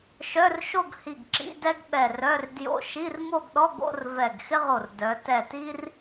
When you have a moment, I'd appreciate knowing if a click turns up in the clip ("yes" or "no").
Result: yes